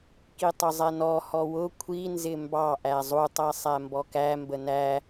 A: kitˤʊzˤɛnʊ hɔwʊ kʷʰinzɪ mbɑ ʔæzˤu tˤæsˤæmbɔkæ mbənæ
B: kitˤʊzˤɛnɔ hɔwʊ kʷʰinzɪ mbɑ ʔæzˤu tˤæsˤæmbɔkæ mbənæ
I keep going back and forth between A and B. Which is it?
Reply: B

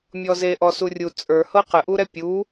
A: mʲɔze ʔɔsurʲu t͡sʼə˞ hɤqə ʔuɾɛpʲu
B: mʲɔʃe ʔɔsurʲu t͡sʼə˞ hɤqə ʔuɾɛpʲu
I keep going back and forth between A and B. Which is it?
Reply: A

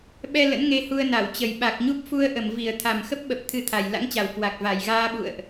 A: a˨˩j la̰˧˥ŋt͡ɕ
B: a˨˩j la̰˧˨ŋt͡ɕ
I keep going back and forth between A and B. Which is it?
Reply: A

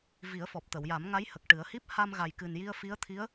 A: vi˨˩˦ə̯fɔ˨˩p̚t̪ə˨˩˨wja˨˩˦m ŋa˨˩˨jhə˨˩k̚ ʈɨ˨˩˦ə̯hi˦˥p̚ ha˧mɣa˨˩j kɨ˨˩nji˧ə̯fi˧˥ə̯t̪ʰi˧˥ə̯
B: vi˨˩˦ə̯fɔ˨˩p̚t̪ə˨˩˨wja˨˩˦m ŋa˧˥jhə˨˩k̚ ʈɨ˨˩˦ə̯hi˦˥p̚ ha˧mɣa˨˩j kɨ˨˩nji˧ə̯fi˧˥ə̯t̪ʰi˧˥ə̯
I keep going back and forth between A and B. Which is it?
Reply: B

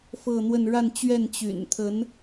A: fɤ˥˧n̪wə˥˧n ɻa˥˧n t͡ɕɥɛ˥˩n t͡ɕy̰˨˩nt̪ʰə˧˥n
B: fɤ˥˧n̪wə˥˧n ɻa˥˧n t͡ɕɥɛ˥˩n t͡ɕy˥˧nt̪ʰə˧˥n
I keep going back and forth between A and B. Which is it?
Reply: A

